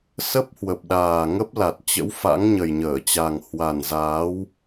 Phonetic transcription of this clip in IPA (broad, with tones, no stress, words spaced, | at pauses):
sə˦˥p̚hwə˨˩p̚ɗaː˨˩ ŋə˦˥p̚la˨˩t̚t͡ɕə̰˧˥w fa̰˧˥ŋɲə˨˩jɲəː˧˩t͡ɕa˨˩ŋ hwa˨˩nzaː˨˦w